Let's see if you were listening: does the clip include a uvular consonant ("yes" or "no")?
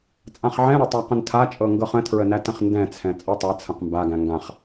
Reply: yes